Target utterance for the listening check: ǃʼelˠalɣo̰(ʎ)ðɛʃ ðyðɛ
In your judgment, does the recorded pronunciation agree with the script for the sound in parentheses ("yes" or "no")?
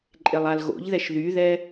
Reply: yes